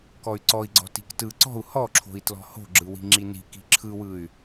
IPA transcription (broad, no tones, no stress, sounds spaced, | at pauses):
k ɔ y̯ ǀ ɔ i̯ ɡ͡ǀ ɔ̤ t i̤ k t ɯ ǀ ɔ̤ u̯ h ɔ ǁʰ o̤ i̯ t l ɔ̤ h o̤ ɡ͡ǁ ɯ w i̤ ŋ͡ǁ i n i̤ k i̤ ǁʰ ɯ w ɯ y̯